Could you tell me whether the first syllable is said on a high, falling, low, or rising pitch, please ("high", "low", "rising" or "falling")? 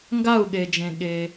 falling